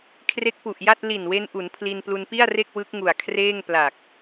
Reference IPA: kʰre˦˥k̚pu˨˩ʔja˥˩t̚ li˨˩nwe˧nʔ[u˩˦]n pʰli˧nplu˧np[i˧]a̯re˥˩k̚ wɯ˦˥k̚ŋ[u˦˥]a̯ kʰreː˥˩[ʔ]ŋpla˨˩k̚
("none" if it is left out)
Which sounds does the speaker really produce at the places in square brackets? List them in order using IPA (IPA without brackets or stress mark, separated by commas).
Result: u˩˦, i˥˩, u˨˩, none